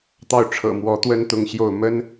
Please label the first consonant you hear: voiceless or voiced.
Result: voiceless